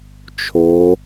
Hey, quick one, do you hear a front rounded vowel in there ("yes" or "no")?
no